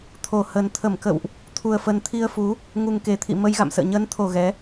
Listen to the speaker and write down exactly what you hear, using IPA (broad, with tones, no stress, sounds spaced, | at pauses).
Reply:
t̪ʰ o˧˩ h ə˨˩ n t̪ʰ ə˧˩ m k ə̰˧˨ w ʔ | t̪ʰ u˨˩ ə̯ f ə˨˩ n t̪ʰ i˧ ə̯ f u˨˦ | ŋ u˨˩ ŋ k e˨˩ t̪ʰ ḭ˧˨ m ə˧ j ɣ a̰˧˨ m s ə̰ː˧˨ ɲ əː˨˦ n t̪ʰ o˨˩ ɣ ɛ˨˦